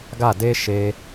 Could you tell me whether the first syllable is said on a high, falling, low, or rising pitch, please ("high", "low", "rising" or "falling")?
falling